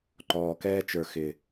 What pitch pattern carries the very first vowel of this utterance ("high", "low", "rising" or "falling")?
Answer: low